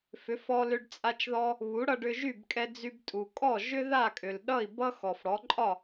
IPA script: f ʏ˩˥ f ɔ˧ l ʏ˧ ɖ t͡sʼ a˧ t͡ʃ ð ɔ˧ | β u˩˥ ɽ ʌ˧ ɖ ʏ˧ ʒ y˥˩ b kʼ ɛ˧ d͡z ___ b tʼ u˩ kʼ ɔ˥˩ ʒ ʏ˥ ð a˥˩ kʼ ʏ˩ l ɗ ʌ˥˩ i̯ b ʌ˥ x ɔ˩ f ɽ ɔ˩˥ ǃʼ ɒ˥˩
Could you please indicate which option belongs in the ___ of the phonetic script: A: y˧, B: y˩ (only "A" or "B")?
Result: A